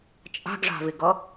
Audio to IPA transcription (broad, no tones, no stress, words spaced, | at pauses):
t͡ʃʼɑ̤ɡʐɑ̤vɪɡɔ